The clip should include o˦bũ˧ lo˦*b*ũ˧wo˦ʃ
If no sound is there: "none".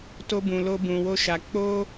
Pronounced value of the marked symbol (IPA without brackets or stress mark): b